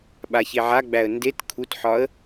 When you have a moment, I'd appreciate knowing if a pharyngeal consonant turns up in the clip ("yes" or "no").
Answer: yes